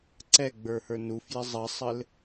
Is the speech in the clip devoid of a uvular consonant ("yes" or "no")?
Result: yes